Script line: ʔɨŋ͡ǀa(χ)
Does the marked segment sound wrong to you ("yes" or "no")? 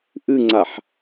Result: yes